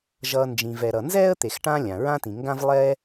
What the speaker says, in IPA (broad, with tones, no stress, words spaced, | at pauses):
ʒʌː˨nd͡ʒĩ˩vɛ˩ɾʌ˩ nzɛː˥ə̯ t̪e˨xʈã˦lʲã˩ ɹã˥tĩ˩ŋɡã˥v lˠɛː˦